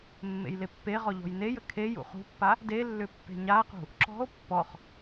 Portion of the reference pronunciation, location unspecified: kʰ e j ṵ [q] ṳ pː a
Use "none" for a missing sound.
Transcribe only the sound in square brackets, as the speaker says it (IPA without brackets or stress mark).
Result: χ